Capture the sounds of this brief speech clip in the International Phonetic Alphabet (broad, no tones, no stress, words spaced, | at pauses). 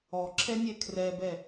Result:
ɔǁʰɛnʲɛ kʰrɛbɛ